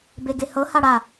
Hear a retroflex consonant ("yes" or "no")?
yes